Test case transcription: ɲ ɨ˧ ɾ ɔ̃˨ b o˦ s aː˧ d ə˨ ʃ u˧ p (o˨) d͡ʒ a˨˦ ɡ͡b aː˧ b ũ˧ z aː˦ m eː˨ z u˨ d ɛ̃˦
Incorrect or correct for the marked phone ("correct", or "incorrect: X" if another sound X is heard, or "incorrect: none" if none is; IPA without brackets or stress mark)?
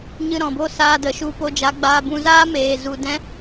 incorrect: o˧